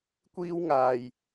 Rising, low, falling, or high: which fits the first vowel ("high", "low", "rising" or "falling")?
high